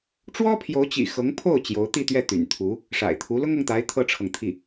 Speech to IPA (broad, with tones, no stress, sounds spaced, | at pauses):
ʈ͡ʂ w ɔ˥ pʰ j o˧˥ ʊ̯ t͡ɕ ḭ˨˩ x ɤ˧˥ ŋ pʰ o˥˩ ʊ̯ t͡ɕ j o˧˥ ʊ̯ t̪ i˥˧ t̪ ɥ ɛ˥˩ t̪ y̰˨˩ n t̪ʰ u˧˥ | ʂ a̰˨˩ ɪ̯ t̪ʰ u˧˥ l ʊ˥ ŋ ɤ˨ ŋ t̪ a˧˥ ɪ̯ t̪ʰ ɤ˥ ʈ͡ʂʰ ɤ˨ ŋ t̪ʰ i˥˩